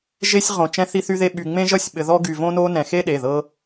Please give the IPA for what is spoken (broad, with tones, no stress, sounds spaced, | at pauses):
ʒ e˥ sʲ ʁ õ˧ t͡ʃ ɛ̃˥ θ i˥ θ y˥ ð e˥ ɓ y˧ ŋ͡m ẽ˥ ʒ ʌ˥ sʲ ɓ ɘ˧ ð ɔ˥ ɡ y˧ v õ˥ n o˥ n ɛ̃˧ x e˥ ɗ e˩˧˩ ð ɤ˥